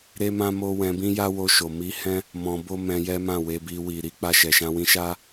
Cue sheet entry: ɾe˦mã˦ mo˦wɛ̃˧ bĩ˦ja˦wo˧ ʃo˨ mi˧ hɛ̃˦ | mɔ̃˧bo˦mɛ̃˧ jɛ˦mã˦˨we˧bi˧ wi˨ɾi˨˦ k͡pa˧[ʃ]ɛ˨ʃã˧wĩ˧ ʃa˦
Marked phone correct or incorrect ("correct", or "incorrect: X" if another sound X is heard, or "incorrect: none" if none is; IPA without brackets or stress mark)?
correct